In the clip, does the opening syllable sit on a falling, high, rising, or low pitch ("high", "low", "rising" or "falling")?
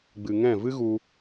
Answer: low